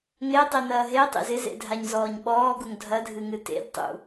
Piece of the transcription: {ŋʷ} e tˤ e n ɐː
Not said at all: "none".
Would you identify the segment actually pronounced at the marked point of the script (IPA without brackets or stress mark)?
ŋ